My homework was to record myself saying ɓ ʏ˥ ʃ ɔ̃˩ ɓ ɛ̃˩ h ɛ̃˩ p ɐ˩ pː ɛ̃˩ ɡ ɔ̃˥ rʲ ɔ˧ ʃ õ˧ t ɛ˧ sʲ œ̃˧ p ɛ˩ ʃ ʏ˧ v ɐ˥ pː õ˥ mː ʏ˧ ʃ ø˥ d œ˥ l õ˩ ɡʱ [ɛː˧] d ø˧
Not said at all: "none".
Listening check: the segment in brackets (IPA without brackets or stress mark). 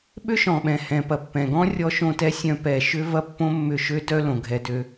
ɛ˧